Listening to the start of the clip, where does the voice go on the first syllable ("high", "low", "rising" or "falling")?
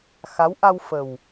rising